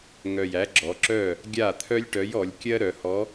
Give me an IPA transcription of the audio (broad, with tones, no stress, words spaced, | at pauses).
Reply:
ŋœ˨˩jæ˨˥ɡ͡ǁɔ˩˧ǁœ˥˩ | ɡʲa˥˩ t̪ʰœ˥lʲʈœ˨˥jɔ˩˧lʲ kʲɜ˥ ɾœ˩˧hɔ˨˥